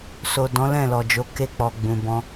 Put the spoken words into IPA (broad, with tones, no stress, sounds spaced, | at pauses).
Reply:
s o˨ d ɔ̃˨˦ l ɛ̃˦˨ l ɔ˨ d͡ʒ o˨˦ k e˧ k͡p ɔ˨ ɡ͡b ũ˨ b ɔ̃˧